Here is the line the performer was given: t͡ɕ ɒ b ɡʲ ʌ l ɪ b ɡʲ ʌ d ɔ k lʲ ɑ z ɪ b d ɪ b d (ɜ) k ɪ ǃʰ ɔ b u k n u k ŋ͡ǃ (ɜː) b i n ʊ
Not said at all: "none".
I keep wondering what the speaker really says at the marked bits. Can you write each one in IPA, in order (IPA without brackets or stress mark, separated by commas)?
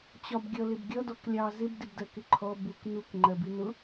ɜ, ɜ